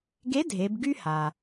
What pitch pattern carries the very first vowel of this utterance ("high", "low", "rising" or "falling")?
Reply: rising